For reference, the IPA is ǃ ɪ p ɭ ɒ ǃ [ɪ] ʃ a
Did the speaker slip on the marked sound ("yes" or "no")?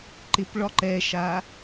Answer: yes